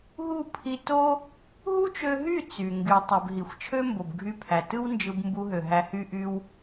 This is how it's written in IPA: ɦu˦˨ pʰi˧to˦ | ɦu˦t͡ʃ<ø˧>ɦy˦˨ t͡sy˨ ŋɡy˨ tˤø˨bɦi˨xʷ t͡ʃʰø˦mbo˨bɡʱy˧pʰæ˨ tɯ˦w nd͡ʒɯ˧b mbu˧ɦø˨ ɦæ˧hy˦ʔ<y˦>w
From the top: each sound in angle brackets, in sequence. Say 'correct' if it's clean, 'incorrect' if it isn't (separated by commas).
correct, correct